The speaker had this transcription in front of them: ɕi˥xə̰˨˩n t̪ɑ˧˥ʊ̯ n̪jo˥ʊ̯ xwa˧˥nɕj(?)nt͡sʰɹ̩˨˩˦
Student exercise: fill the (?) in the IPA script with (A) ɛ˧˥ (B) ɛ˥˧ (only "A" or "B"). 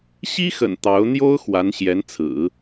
A